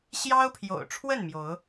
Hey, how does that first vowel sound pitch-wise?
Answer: high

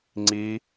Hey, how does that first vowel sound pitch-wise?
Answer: high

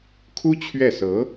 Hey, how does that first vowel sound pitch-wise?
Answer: high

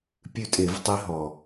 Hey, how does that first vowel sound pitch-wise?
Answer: falling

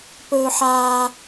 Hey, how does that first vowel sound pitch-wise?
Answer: high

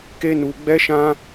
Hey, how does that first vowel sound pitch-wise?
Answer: high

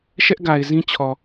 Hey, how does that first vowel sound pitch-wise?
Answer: high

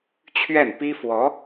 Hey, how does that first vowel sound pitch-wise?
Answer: falling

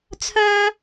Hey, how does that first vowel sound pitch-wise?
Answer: high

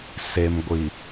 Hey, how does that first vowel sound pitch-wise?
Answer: low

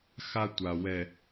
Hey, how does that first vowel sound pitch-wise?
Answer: high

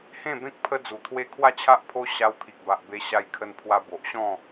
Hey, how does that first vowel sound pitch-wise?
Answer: falling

